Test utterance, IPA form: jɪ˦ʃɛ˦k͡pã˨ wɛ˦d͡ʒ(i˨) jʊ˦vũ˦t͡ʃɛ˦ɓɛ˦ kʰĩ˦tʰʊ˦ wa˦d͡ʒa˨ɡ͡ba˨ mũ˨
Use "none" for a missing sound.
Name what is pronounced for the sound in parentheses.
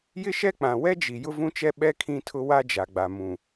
i˨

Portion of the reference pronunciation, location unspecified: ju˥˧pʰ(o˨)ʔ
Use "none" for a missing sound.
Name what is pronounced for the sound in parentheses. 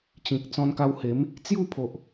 o˨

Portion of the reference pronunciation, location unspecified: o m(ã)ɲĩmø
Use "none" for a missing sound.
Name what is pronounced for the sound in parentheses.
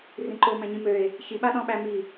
æ̃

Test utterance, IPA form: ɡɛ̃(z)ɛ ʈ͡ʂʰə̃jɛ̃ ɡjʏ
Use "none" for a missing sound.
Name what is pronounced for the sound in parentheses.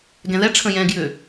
ð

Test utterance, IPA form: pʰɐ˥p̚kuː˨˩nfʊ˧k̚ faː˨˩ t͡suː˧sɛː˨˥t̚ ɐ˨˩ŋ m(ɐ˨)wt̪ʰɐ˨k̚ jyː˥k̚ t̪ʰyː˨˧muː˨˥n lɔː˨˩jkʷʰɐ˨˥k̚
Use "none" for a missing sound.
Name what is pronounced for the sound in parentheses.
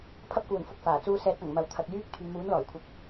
ɐ˨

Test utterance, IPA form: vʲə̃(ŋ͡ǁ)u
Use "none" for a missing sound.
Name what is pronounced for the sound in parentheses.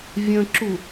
ǁ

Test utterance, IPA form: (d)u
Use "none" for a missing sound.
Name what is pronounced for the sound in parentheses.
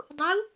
dˤ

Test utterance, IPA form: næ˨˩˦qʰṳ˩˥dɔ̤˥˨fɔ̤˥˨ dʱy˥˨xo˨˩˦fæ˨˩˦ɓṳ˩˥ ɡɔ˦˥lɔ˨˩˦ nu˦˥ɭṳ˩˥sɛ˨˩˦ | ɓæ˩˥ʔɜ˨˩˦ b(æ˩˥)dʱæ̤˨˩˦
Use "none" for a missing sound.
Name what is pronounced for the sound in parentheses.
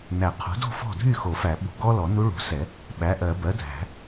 ɜ˩˥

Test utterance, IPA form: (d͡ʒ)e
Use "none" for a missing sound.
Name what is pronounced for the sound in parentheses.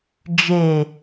d͡ʒ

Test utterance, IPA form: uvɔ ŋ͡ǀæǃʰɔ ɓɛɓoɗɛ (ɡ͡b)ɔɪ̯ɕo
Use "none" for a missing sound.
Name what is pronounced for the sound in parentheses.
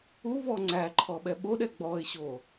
ɡ͡b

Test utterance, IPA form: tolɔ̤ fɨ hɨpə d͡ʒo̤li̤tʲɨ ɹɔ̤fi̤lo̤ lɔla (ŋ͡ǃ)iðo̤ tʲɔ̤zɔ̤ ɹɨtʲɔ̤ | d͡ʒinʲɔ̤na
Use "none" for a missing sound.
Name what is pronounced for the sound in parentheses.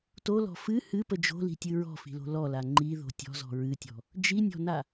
ŋ͡ǃ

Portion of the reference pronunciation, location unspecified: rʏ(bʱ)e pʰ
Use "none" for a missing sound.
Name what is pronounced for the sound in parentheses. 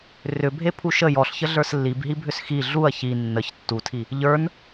bʱ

